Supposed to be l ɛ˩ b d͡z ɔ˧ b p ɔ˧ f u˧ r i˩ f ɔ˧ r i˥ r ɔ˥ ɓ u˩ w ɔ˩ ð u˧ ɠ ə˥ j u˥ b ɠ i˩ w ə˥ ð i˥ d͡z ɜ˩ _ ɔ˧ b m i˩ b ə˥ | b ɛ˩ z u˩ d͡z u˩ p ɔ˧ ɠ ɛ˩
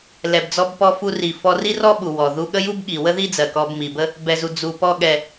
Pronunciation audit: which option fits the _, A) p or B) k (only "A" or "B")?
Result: B